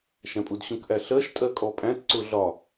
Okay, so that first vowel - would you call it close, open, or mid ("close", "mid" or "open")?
open